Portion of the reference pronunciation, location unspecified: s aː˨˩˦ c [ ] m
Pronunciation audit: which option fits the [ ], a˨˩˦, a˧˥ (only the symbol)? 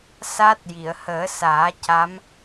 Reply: a˧˥